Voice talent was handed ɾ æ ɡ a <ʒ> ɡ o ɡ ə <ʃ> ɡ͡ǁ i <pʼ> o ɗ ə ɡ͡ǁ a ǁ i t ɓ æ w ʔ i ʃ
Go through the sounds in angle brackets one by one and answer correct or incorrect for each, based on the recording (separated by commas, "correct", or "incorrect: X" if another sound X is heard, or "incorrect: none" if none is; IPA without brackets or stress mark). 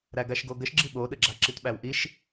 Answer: incorrect: ʃ, correct, incorrect: ɓ